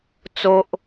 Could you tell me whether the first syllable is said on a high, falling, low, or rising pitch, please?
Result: high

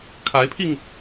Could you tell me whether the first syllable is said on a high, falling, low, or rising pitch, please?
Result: rising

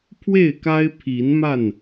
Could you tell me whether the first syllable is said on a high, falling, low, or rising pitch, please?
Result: falling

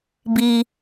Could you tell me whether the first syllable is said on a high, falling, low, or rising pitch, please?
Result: high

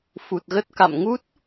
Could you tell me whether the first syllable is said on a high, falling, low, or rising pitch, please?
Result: low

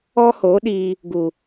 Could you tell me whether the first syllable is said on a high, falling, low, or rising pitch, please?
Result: high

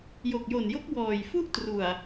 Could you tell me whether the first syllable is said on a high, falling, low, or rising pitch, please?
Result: low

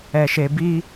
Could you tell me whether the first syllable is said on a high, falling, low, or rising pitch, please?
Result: low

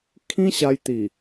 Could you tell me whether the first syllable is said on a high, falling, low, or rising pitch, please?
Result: high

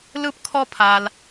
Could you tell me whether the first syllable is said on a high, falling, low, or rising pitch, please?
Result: high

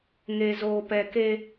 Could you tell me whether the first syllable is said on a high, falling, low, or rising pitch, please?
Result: low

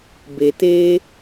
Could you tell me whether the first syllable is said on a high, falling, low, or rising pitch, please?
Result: low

